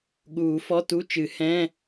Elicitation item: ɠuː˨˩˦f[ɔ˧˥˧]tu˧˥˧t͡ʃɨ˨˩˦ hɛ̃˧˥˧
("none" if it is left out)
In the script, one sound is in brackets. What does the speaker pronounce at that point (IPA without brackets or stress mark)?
ɔ˧˥˧